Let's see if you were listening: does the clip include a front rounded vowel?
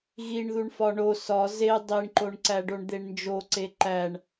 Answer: no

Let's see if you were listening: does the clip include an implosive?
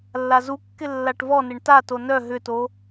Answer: no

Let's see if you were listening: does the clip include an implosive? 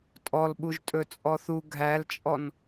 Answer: yes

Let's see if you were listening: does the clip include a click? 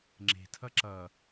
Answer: yes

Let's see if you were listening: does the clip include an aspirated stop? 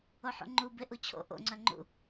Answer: yes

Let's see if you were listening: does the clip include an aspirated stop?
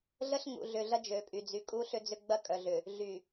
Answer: no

